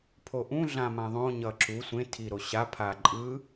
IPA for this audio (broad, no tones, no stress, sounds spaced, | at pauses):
pʰ o ʔ ũ ɮ ã m ã ðˤ õ ɲ ʌ ǁ u sʷ ẽ tʰ i ɾ o ɕ a pʰ a ǃʼ ɯ